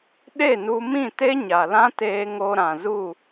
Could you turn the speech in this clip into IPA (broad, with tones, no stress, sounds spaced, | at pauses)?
ɗ e˦˨ n u˧ m ĩ˦˨ t e˦ ɲ a˨ l ã˦ t eː˧ ŋ o˧ ɾ ã˨ z u˦˨